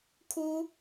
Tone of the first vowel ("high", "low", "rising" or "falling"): high